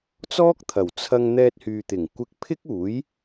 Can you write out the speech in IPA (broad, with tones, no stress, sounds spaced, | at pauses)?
t͡s ɔː˥ k̚ t̪ʰ ɐ˨˩ w t͡sʰ ɐ˧ ŋ n̪ ɛː˧ t̚ h yː˨ t̪ ɪ˨˩ ŋ kʷ ɪ˧ k̚ pʰ ɪ˥ k̚ uː˨˥ j